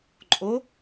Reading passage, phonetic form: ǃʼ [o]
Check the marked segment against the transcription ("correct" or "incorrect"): correct